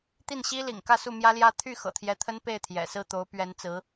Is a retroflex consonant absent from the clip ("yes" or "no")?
yes